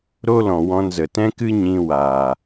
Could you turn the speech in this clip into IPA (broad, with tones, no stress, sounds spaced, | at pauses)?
ɾ o˦ l ɔ̃˨ w ɔ̃˧ n z ə˨ t ɛ̃˦ k ɨ˦ ɲ ĩ˧ w aː˨